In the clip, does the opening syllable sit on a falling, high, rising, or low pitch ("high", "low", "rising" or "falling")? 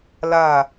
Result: falling